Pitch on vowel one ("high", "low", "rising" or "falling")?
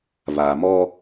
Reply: low